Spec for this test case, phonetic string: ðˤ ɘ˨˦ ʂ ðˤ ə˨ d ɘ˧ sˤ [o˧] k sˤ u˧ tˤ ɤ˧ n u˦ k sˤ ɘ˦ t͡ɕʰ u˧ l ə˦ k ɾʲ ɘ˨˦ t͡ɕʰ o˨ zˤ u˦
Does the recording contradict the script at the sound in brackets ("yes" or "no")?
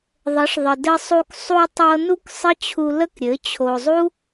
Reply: yes